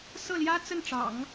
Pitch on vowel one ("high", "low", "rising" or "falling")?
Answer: falling